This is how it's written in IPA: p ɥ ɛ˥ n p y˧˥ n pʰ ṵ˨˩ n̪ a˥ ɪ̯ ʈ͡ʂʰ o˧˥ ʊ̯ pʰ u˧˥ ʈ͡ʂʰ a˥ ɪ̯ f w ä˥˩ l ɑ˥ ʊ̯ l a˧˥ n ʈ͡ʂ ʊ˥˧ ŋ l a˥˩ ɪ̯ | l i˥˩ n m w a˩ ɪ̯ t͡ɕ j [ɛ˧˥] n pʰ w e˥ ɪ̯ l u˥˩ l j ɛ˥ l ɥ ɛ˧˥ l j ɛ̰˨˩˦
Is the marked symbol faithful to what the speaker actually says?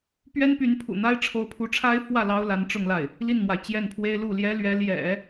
no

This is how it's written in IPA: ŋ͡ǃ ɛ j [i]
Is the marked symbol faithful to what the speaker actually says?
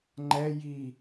yes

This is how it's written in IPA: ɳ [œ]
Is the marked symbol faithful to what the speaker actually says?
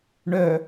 yes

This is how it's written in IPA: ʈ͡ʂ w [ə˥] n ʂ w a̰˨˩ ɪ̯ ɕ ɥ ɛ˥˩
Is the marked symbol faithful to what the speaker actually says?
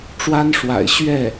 no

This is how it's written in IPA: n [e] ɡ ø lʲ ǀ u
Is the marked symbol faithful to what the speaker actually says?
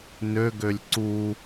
no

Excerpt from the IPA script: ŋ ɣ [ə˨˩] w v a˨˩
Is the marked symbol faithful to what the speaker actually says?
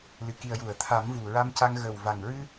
yes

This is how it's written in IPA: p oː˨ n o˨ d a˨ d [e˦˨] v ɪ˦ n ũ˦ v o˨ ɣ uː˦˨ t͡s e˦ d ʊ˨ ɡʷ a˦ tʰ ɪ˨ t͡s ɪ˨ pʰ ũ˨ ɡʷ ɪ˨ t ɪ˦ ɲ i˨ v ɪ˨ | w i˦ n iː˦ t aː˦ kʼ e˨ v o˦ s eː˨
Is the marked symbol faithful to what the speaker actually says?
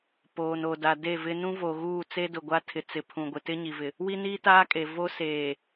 yes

